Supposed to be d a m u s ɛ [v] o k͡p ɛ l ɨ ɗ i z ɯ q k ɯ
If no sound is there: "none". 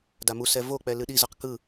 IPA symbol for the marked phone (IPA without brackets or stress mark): v